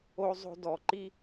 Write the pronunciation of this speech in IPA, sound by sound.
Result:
o˧zˤo̤˧dɔ˨ǃi˦

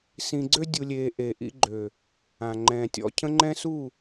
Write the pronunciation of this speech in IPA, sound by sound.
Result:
sĩ˧ɡ͡ǀø˦ dʲu˧lʲeː˧ ʔe˨ʔḭ˧ɡ͡ǃø˨ | ã˨ŋ͡ǃɛ̃ː˨tʲɔ̰˨ cʰə̃˦ŋ͡ǃɛ̃˦ su˦˨

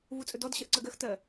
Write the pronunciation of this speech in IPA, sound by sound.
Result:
vut͡sʼɵdɔd ɕɜʔǀɜɡɜx tɜ

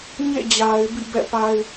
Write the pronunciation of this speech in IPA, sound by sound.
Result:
ɲḛ˦˨d͡ʑa˨ɪ̯ bḭ˦˨bɛ̰˦˨pa˦ɪ̯

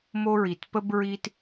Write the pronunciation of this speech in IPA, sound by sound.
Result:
mo˦ɹi˨t pə˦bɹi˦t

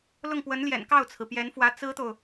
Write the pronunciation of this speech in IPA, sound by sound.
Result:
lʊ˥˩ŋpwə˧˥nljɛ̰˨˩n kɑ˥˩ʊ̯t͡sʰɹ̩˩pjɛ˧˥nfwä˧˥ t͡sɹ̩˥t̪o˨ʊ̯

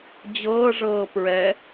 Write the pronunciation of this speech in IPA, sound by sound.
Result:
d͡ʑɤːʐɤː pɹɛ

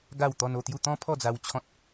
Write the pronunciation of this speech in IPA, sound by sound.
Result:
ɡa˥˧w t̪ɔ˧n o˥˧t̪ju˥˧ t̪ɔ̃˦pʰɔ˥˧d͡za˧w t͡ɕʰɔ̃˦t̚

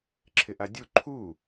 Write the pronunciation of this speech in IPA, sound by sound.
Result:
ǁʰɪʔadʲu ǃʰu

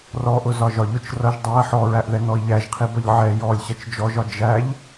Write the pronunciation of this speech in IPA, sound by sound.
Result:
rɔʔʊ zɒʒɒʎʊt͡ʃ rʌʒ dˤæ ħɔɹæʔðɛ nɔi̯ʎæʒqʰi bʌʎʕɛ jɔlʲ ɕʌt͡ʃd͡ʒɔʒɒ d͡ʒæʎ

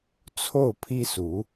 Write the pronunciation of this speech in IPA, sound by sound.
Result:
t͡sʰo˥˩ʊ̯pʰi˥su˧˥

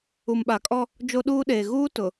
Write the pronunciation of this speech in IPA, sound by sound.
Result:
u˨mɓa˨kʼɔ˦ | d͡ʒo˦ɗuː˦ɗeː˨ ɣuː˦ tʊ˨

